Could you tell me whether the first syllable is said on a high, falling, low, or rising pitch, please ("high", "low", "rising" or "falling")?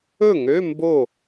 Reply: falling